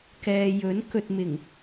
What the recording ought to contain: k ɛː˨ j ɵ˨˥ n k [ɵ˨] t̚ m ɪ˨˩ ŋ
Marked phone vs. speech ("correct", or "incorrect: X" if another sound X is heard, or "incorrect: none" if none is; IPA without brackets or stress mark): correct